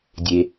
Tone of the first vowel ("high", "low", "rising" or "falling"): low